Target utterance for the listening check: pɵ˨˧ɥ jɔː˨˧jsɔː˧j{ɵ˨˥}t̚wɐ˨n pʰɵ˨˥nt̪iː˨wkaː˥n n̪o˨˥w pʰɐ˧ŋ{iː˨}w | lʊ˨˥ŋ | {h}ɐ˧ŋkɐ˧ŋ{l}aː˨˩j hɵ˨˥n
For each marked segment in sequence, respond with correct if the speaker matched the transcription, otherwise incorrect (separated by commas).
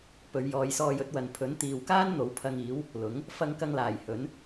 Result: correct, incorrect, incorrect, correct